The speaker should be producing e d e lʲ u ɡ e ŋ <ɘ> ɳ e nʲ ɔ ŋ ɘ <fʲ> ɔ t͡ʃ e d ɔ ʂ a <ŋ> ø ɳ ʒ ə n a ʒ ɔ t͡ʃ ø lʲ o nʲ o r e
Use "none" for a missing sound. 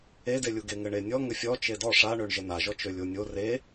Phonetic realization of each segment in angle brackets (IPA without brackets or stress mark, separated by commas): ɘ, fʲ, ɳ